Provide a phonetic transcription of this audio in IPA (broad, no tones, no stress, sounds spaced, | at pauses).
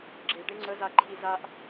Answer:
ɡ͡ǁ e ɖ e ŋ͡ǀ ə z a ǃʰ i z a ʔ